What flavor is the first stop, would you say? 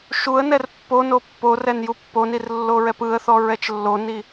plain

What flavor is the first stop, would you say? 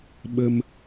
implosive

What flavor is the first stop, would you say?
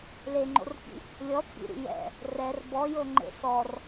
click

